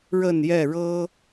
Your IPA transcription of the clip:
ɻə˥˨njɛ˥˨ ɻɤ˦

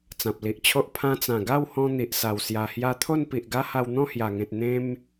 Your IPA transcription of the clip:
t͡sã˨p̚li˨ʔt͡ɕʰo˦ʔ pʰã˧t͡sã˨˩ɡa˥˧whɔ̃˧ n̪i˨ʔsa˨˩w sja˨˩hja˧t̪ʰo˥˧n pi˨ʔɡa˦ ha˧wn̪ɔ̃˥˧hja˨˩ŋẽ˨t̚ n̪ẽ˦m

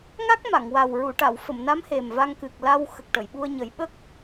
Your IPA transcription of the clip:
ŋa˦˥k̚ma˨˩˨ŋ wa˨˩w ɹu˨˩˨ʈa˨˩˨w fə˨˩˨mna˧˥m he˨˩mva˧ŋ kɨ˨˩k̚la˧w xə˨˩k̚ʈə˨˩˨jɓu˧ə̯ɲə˨˩˦j ɓə˦˥k̚

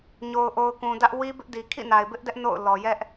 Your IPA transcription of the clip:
ɲo˨ʊ̯ʔo˨ʊ̯kũ˨dä˦ʔ wi˦ bɪ˦ʔdi˨ kʰḭ˦˨na˨ɪ̯bɪ˦ʔdɛ˦ʔ no̰˦˨ʊ̯ lɔ˨jɛ˦ʔ

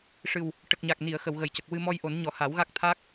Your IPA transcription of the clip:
ʂɨ˨˩w | ʈə˨˩k̚ɲa˨˩k̚ ni˨˩˨ə̯ xə˨˩˨wɣə˨˩˨jcə˨˩k̚ wɨ˧mɔ˧jʔo˨˩˦n ɲɔ˨˩˨ha˨˩˦wɣa˦˥k̚ t̪ʰa˦˥k̚

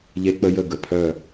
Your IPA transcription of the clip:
ʎe˦k͡pə˦jə˦˨ ɡə˨pʰœ˦˨

